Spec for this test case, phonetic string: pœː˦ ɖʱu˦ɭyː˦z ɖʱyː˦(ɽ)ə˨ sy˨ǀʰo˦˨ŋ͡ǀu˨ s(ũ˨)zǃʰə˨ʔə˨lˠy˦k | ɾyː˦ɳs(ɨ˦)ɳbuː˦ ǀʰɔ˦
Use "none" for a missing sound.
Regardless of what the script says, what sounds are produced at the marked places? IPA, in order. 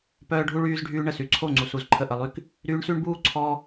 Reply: ɳ, u˨, y˦

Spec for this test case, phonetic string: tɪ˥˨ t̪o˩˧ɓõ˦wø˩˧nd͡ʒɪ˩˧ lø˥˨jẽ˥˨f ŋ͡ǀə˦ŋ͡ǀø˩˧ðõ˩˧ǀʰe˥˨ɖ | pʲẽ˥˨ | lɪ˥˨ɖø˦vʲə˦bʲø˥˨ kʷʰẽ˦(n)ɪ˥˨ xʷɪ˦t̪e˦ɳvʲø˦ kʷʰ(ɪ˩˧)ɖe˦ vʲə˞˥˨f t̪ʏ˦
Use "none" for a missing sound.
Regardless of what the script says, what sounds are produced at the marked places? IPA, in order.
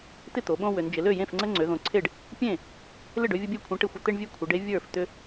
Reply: ʈ, ɪ˩˧

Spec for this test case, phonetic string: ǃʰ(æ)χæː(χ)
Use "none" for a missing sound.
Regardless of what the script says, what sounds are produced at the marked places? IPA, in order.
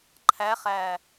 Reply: æ, none

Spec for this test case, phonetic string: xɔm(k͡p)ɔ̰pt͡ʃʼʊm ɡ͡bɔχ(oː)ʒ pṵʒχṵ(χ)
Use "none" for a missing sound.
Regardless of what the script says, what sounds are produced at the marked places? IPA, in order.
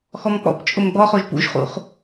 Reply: k͡p, o, χ

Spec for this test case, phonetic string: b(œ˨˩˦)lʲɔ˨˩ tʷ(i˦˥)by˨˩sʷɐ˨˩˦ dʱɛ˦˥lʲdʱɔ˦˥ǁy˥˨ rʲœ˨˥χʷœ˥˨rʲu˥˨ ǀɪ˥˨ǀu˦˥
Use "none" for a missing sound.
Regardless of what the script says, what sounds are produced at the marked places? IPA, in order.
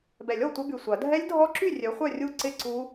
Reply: ɛ˨˩˦, ɪ˦˥

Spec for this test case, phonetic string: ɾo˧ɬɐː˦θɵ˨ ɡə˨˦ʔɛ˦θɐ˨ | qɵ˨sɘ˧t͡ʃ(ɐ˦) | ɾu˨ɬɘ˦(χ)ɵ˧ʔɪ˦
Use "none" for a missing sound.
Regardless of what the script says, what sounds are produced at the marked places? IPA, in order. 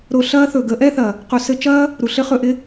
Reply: ɐː˦, χ

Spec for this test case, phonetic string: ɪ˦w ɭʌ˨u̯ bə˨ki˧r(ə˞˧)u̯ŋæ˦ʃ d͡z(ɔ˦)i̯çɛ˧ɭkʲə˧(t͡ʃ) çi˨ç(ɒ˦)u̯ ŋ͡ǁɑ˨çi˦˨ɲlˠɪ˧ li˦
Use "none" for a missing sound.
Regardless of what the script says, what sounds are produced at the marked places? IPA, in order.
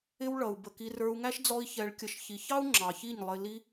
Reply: ə˞˧, ɔ˦, ʃ, ɑ˦

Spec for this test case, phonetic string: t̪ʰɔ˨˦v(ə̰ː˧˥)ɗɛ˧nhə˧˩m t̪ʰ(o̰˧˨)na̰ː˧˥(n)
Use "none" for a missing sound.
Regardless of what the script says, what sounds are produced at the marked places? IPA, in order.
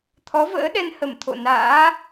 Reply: ə̰ː˧˥, o̰˧˨, none

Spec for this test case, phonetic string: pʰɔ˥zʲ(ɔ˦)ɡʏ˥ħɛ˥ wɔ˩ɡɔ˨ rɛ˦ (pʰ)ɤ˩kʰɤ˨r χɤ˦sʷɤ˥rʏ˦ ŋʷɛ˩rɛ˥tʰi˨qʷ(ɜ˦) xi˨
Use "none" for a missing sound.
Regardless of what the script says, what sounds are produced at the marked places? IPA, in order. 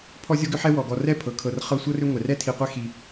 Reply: ɔ˥, pʰ, ɛ˦

